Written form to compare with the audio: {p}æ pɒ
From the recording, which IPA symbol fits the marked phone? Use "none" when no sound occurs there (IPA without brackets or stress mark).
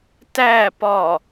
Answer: t